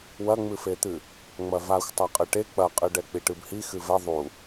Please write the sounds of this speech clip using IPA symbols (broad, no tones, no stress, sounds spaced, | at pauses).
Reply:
w ɐ ŋ͡m ɨ f e t̪ ɨ | ŋ͡m ɐ v a xʷ tˤ a qʼ ɨ ʈ e k͡p ɐ qʼ ɨ ɖ ɛ k͡p i ʈ ɨ b h i x ɨ v ɛ ðˤ u